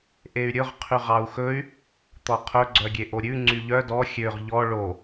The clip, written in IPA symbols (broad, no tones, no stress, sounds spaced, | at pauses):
ʔ e y̯ ɾʲ ɵ ʁ qʰ y ʁ ɑ u̯ x ɵ y̯ | t̪ ɔ qʰ ɵ ɡ͡ǀ œ ɡʲ e ʔ o ɾʲ ʉ ŋ͡ǀ y ʎ œ d ɔ xʲ ø ʁ ʎ ɔ ɭ o